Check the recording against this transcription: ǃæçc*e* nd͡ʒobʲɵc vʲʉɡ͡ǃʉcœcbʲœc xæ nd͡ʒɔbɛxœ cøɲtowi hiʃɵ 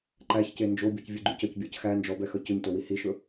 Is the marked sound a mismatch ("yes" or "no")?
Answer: no